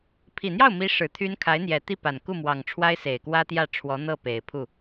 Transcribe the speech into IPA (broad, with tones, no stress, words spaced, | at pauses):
pʰi˨˩n̪jɑ˥˩ʊ̯mi˧˥ ʂɻ̩˨˩t̪ʰy˥n kʰa˧˥ɪ̯n̪jɛ˨˩t̪i˥˩pa˨˩n ku˥˩mwɑ˨˩ŋ ʈ͡ʂʰwa˥ɪ̯se˨˩ɪ̯kwä˥t̪jä˥˩ ʈ͡ʂʰwɔ˧˥n̪ɤ˥˩ pe˨˩ɪ̯pʰu˥˩